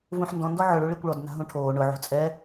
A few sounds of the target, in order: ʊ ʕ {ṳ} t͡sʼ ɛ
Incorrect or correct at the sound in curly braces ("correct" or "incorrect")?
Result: correct